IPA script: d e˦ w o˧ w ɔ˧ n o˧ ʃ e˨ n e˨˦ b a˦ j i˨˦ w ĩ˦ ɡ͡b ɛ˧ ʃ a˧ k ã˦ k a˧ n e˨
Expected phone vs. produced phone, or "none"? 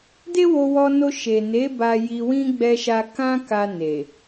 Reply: i˨˦ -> i˧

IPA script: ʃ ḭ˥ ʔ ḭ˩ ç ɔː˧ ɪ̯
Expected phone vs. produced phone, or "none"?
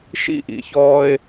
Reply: none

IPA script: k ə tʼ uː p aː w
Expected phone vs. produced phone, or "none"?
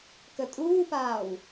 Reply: none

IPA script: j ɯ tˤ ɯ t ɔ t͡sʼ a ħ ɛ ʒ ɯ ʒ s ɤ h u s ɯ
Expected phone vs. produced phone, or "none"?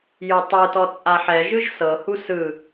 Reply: none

